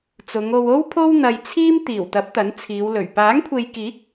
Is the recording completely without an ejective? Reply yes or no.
yes